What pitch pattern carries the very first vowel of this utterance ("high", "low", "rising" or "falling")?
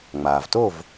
low